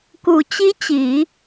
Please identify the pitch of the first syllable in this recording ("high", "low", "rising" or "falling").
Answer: low